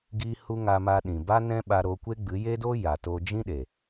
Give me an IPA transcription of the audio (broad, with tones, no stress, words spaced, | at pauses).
ɡiː˦hu˦ ŋa˧ma˧ ɗĩ˨ba˦nɛ̃˦ ɓa˧ɾo˧kʷe˦ ɡ͡bɨ˨˦je˦do˦ ja˨to˧ d͡ʒĩ˦ɗe˨